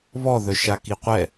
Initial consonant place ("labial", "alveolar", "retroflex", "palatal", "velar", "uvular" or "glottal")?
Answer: labial